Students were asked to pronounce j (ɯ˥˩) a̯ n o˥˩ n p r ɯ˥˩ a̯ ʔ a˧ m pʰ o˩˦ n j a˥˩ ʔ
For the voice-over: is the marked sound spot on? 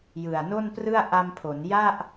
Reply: no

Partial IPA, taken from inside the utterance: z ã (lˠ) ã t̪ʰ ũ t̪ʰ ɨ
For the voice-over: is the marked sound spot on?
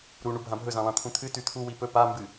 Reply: yes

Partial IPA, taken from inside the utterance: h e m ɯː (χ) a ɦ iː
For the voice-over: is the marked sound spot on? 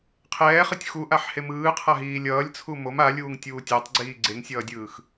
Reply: no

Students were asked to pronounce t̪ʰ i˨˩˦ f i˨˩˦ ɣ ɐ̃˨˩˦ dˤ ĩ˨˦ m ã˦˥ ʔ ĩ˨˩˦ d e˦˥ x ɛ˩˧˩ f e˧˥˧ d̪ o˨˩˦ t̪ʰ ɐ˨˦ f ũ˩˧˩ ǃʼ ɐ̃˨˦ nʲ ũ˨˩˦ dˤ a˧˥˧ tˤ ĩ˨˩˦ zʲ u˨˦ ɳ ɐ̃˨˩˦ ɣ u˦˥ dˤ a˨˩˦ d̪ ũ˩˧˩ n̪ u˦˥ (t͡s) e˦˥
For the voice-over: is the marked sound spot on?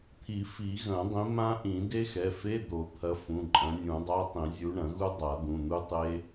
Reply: no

